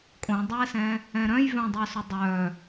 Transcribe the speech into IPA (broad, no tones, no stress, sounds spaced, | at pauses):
kʼ õ dˤ ɛ s ɛ̃ | ɛ̃ ɾ œ̃ j v œ̃ dˤ œ s ʊ dˤ œ